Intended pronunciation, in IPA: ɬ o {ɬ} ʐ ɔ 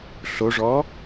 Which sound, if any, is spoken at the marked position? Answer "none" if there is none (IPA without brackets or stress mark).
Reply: none